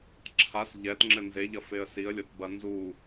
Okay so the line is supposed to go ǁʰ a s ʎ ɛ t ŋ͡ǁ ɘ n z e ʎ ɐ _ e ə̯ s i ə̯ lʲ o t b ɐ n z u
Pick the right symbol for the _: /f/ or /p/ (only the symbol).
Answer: f